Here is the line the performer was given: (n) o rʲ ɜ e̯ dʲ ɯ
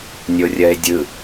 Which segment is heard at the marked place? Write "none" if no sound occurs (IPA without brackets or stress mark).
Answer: nʲ